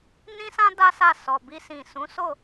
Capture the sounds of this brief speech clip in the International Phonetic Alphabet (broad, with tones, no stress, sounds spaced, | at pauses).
n ĩ˦ s ã˦ d a˦ s a˦˨ s ɔ˨ b i˧ s ĩ˨ s ũ˨˦ s o˦˨